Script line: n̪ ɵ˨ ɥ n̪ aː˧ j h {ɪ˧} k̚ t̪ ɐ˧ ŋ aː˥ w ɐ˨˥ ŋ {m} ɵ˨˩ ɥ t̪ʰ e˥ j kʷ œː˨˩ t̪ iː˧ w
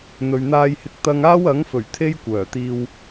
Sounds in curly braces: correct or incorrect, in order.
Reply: correct, incorrect: f

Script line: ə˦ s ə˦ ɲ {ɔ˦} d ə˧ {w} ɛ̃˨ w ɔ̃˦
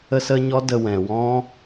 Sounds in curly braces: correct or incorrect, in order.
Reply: correct, correct

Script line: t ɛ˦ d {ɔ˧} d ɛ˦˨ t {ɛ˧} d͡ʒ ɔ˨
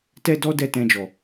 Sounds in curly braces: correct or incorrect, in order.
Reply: incorrect: ɔ˦, incorrect: ɛ̃˧

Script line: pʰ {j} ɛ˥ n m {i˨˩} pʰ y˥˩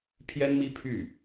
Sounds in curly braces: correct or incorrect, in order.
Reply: correct, incorrect: i˥

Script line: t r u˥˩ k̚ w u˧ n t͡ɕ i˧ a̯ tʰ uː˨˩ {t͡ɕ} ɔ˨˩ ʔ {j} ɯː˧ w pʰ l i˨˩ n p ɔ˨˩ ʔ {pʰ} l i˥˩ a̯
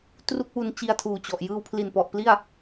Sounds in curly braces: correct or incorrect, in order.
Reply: correct, correct, incorrect: p

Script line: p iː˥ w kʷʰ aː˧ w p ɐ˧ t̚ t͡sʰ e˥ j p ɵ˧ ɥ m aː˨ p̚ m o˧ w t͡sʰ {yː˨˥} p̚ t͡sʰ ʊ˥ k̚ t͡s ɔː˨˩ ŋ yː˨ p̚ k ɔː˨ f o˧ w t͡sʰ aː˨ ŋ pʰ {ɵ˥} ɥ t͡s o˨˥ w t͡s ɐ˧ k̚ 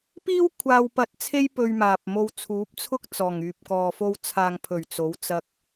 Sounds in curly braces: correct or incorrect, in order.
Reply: incorrect: uː˨˥, incorrect: ɵ˨˩

